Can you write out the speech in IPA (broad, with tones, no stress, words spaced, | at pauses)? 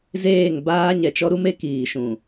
zeː˦˨ŋbaː˦ ɲɛ˨t͡ʃɔ˦ɾu˦me˦ kiː˨ʃũ˨